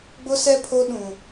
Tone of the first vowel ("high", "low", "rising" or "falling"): high